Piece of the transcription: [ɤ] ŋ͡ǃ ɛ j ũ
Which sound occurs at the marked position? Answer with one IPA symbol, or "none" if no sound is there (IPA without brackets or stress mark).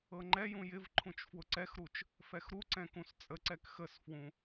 ɤ